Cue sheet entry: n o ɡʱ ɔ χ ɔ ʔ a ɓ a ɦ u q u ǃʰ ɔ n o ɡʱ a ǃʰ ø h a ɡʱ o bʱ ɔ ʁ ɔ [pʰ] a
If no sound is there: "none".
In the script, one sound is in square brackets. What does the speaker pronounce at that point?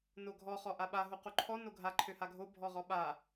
ɓ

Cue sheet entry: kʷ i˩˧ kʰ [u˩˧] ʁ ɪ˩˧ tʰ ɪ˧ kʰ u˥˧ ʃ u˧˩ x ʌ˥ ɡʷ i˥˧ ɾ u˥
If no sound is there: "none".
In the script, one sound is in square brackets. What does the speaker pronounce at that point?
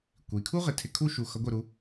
u˥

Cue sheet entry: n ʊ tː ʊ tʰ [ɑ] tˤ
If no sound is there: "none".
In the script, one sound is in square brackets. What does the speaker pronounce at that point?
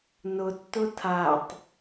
a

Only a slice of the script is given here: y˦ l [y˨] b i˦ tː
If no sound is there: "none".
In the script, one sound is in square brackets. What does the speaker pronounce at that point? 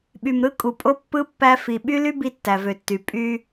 y˦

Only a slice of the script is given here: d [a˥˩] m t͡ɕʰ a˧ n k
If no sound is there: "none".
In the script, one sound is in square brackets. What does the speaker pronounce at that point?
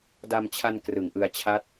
a˧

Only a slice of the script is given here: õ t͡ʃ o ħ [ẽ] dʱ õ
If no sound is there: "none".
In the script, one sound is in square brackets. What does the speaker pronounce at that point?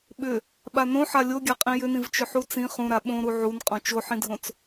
ĩ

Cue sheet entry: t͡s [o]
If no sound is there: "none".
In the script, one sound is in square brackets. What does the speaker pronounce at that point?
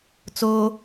o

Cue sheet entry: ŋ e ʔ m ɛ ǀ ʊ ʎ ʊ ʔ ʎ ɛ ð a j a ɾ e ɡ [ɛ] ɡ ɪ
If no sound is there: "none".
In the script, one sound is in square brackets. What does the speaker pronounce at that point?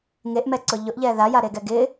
ɛ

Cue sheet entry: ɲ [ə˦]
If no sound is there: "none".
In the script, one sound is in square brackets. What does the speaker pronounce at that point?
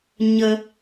ə˦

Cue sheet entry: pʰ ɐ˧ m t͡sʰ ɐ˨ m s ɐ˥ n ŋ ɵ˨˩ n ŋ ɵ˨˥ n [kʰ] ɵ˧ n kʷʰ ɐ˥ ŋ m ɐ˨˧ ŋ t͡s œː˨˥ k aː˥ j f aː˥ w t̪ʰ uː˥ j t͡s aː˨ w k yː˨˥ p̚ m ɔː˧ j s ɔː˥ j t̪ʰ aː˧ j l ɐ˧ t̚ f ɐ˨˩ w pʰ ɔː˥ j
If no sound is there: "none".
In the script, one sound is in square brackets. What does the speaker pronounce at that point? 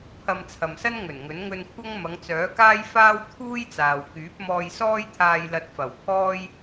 ŋ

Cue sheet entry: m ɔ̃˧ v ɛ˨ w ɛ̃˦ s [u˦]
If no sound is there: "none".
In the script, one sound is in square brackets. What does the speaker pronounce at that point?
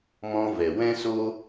o˦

